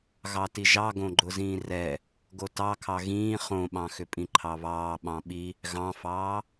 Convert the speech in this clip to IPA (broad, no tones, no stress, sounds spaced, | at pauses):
ɣ ɑ t i ʒ ɑ ɡ õ ɡ͡ǃ ʊ z ĩː r ɛ | ɡ o t ɑ kʰ ɑ ɣ ĩː χ õ ɓ ɑ̃ x ʏ pʼ ĩ ǃʰ ɑ β ɑː ɓ ɑ̃ ɓ i | ɣ ɑ̃ f ɑː